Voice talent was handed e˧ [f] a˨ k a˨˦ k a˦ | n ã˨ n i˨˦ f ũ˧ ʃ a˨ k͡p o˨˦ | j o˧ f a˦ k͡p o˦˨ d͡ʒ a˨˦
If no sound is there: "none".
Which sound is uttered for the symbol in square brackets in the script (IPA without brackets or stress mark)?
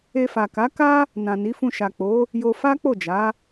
f